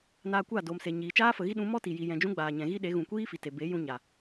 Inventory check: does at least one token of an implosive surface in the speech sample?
yes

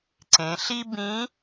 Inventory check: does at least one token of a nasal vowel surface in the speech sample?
yes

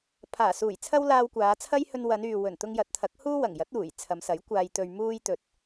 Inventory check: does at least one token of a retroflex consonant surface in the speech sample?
no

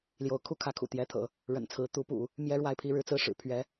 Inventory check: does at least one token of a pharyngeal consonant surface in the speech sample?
no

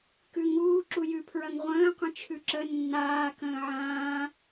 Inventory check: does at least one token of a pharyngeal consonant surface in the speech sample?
yes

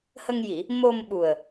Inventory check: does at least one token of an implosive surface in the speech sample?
yes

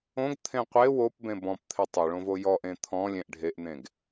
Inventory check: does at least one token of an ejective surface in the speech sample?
no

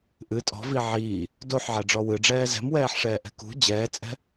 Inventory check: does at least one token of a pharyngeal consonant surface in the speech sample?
yes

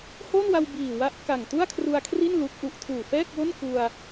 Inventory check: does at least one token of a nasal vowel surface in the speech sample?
no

